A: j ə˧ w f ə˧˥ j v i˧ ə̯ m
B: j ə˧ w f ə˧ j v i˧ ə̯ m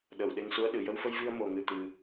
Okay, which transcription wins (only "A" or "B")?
B